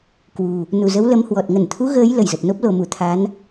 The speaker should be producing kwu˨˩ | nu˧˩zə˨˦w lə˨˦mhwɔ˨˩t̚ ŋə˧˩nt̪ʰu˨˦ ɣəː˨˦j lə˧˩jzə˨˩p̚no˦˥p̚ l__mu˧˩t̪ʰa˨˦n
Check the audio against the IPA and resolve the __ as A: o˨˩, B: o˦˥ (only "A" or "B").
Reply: A